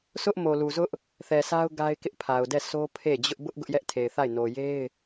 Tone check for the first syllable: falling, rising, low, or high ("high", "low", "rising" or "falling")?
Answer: high